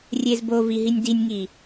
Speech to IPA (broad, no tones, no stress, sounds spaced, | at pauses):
rʲ e z b o v i ɦ i nʲ d i nʲ ŋ i